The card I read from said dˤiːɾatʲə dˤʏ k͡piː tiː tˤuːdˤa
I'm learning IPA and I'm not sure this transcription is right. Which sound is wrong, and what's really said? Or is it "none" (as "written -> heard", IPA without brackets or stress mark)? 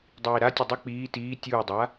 tˤ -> tʲ